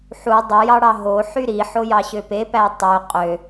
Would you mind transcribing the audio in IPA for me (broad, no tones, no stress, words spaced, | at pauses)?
ħu dˤɯjɑɽɑ ɦoħy ɾiħojɑɕø pepæ tˤø qʼø